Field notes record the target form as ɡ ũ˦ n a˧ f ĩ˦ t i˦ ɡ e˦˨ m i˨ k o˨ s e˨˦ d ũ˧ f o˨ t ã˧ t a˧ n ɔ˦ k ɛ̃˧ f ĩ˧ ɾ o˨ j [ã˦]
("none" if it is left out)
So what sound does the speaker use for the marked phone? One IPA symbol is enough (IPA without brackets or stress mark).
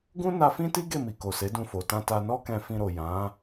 ã˨˦